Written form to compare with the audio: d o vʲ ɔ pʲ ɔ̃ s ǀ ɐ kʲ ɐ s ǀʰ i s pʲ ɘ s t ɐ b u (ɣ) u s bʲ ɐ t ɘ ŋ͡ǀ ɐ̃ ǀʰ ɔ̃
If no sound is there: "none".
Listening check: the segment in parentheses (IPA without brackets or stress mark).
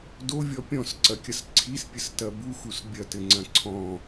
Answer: x